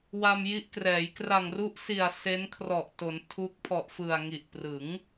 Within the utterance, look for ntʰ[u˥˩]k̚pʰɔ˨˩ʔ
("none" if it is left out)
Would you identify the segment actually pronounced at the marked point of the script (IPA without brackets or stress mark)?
u˦˥